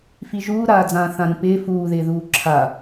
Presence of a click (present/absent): present